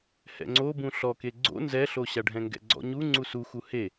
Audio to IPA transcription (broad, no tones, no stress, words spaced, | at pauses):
hɛ̰ŋ͡ǀobũ ɬɔke ɡ͡ǀo̰ nzɛɬoɕa ɖʱɛ̃ŋɡɛ̰ɡ͡ǀɔ̰ɲu ŋ͡ǀusuxu he